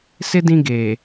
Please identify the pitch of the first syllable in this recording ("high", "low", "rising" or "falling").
high